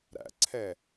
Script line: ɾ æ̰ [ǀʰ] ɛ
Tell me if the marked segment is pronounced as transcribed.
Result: yes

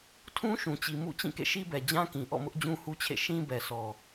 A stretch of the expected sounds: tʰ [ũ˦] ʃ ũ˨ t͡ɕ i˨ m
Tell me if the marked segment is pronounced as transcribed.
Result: yes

